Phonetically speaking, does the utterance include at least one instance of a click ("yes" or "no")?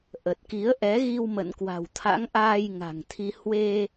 no